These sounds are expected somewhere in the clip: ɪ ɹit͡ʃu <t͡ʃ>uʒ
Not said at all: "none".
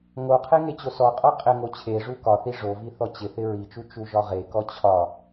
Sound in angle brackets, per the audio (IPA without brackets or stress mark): t͡ʃ